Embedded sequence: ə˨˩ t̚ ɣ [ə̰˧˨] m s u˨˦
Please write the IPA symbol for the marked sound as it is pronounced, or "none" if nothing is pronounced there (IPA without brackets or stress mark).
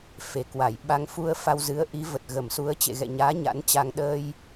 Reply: ə˧˩